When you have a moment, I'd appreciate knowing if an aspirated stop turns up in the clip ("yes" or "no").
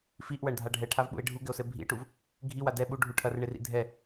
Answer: yes